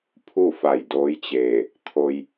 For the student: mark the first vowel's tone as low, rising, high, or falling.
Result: falling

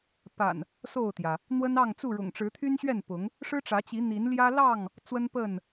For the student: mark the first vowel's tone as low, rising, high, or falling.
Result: low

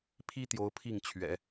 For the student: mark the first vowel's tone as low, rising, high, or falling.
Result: high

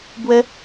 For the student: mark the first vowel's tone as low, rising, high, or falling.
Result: high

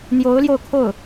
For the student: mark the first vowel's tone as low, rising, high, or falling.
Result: rising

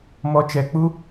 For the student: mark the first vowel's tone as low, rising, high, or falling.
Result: low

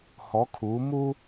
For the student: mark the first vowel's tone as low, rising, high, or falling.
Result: rising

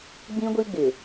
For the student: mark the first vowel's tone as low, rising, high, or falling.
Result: high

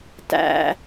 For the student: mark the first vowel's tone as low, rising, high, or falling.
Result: low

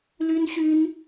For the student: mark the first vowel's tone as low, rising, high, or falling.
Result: high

